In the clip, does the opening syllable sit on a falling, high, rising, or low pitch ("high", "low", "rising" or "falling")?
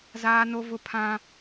high